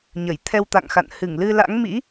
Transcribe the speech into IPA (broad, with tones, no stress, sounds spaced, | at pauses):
ɲ ə˧˩ j t̪ʰ ɛ˧ w t̪ a̰˧˨ ŋ x a̰˧˨ n h ɨ˧˩ ŋ l ɨ˧ l a̰˧˥ ŋ m ḭ˧˥